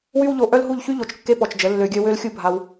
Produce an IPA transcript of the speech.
w y˦ w ʎ o˧ ʔ œ˦ l ɦ u˦˨ ʎ ç y˦ ʎ o˨ t͡ʃ kː e˦ p ɔ˨ t͡ʃ d͡ʒ ə˨˦ lː ø˧ ɡʲ œ˦ w ø˦ l xʲ u˦ bʱ a˧ w

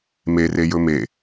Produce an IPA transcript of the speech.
m e r e j ɵ m e

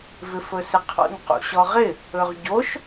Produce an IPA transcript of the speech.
v ɪ f ɵ s ɪ qʰ ɔ̰ ɲ q ṵ ɕ ɔ ʁ ɪ | ɵ ʁ ɟ o ʃ

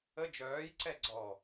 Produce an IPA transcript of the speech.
ə d͡ʒ œː j ǀ ɛ ɡ͡ǀ ɔ

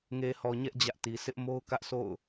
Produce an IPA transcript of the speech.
ŋ e˨ h ɔ˨ ɲ ɛ˦ ʔ d͡ʑ ä˦ ʔ t i˨ sʰ ɪ˦ ʔ m o˦ ʊ̯ k ä˦ ʔ sʰ o̰˦˨ ʊ̯

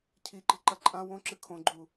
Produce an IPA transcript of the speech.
cʰ i ǃ i̤ ǃ ɐ ǃʼ ã w õ ǁ ɨ kʰ õ ɡ͡ǃ u

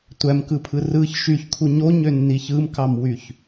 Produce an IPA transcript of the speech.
tʷ æ m k ɯ pʰ ɯ r ɯ ç ʃ y ç kʰ u ɲ o ɲ ø nː i ç ɯ m k ɑ m w y ç

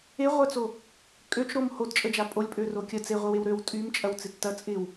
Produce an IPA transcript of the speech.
e ʁʷ œ t͡s o | kʼ ø t͡ʃ ɾ o m h o d t͡ʃʼ ə d͡ʒ a pʼ o lʲ pʼ ø r o kʲ ə t͡s e ʁʷ ɪ w e w ɾ ø w tʼ y m t͡ʃʼ ɐ w t͡s ɪ tː ɐ t͡sʼ ɪ w

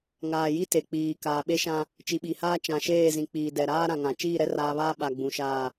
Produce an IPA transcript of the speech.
ŋ aː˨ j i˦ t e˨ k͡p iː˨ k aː˨ ɓ e˦ ʃ ã˦ | t͡ʃ i˨ ɓ i˨ h aː˦ t͡ʃ ã˨ ʃ eː˦˨ z ĩ˨ k͡p iː˨ d ɛ˨ ɾ aː˦ ɾ ã˨ ŋ ã˨ t͡ʃ iː˦˨ ɾ ɛ˦ r aː˨ β aː˦ ɓ a˨ ɡ͡b ũ˨ ʃ aː˦˨

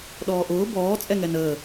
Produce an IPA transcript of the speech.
ɗ ɔː ʔ ʊː b ɔː t͡sʼ ɛ ŋ ɛ n əː

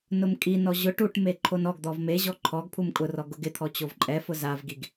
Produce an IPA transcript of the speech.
n ʊ m kʼ i n ɔ ʑ ʊ ʈ u ʈ m e ǃʰ o n ɔ ɡ d̪ ɔ v m e ʑ ɔ ǃʰ ɔ ɡ pʰ u m kʼ ʊ r ɔ ɡ ʊ ɡ ɪ t̪ʰ ɔ t͡ɕ o v ǃʼ ɛ f ʊ z a v ɡ i ɡ

